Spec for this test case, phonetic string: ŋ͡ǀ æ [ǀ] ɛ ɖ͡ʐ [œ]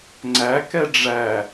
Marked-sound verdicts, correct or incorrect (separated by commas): incorrect, incorrect